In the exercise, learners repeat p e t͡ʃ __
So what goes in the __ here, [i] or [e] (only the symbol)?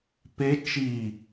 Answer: i